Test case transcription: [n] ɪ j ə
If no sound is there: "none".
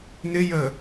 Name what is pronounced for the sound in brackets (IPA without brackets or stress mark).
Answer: n